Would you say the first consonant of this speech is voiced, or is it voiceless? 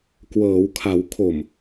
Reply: voiceless